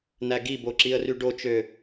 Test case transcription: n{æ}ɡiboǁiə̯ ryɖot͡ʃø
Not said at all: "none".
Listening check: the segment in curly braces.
æ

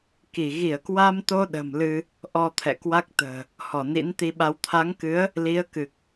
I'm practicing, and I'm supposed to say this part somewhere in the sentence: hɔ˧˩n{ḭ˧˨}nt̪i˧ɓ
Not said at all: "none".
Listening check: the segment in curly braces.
ḭ˧˥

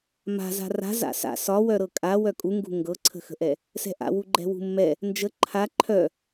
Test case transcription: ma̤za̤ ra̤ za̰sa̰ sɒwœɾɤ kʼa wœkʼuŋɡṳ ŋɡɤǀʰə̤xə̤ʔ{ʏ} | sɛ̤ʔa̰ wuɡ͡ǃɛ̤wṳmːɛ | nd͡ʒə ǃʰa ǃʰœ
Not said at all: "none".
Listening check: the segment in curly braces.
ɛ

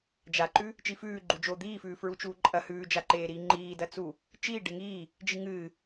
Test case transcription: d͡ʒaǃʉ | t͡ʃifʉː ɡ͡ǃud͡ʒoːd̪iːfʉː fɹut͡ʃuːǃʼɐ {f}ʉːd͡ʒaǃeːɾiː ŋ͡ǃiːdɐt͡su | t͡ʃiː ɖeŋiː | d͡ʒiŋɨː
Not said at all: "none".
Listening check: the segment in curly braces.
h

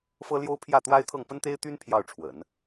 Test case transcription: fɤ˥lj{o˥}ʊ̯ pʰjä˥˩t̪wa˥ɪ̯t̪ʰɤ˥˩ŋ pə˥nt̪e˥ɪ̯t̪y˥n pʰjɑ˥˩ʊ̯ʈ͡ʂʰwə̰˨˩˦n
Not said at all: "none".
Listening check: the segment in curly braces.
o˥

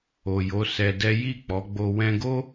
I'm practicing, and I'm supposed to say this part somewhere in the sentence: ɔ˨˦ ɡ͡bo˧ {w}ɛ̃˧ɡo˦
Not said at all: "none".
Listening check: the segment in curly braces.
w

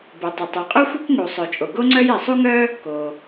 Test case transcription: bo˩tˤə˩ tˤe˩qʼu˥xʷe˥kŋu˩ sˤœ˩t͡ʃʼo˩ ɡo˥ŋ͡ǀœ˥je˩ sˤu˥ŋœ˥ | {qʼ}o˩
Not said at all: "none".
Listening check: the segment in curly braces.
k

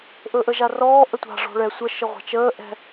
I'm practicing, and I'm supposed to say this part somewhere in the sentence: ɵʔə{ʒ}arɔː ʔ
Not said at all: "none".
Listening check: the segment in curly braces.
ʒ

